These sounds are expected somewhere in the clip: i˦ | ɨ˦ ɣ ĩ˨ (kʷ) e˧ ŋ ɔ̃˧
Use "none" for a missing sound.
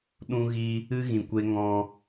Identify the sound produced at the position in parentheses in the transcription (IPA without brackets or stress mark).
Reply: kʷ